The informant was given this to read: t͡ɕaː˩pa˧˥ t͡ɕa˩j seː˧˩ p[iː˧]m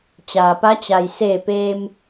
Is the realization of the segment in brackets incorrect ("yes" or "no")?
yes